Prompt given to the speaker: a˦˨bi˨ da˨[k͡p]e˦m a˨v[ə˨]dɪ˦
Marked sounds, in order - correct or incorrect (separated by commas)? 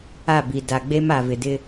incorrect, incorrect